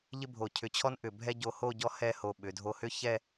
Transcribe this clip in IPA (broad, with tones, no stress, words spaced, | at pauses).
ʎɪ˥bʱo˧˩cʰʏ˧t͡ɕʰɔ˥n ʔʏ˧˩bʱɛ˥ ɟo˧ho˥˧ ɟɔ˥hɛ˥˧ ho˧˩ɓʏ˩˧dʱo˧hʏ˥ çɛ˥˧